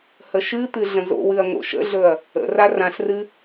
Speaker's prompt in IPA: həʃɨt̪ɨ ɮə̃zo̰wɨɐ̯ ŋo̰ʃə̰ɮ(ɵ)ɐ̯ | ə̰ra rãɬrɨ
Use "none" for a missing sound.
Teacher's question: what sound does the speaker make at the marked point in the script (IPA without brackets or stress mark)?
ɵ